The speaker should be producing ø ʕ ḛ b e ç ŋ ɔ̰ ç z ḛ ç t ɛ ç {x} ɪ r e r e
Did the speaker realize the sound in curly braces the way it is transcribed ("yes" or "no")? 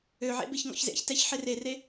no